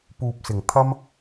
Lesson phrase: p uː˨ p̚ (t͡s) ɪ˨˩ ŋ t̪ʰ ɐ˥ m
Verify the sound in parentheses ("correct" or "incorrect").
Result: incorrect